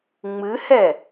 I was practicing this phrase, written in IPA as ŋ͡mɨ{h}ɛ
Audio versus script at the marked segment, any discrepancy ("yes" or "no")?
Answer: no